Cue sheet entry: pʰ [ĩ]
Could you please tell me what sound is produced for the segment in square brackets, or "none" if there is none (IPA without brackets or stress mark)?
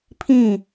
ĩ